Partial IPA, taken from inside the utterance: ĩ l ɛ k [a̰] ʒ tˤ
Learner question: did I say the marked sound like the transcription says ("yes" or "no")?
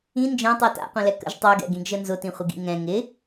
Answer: no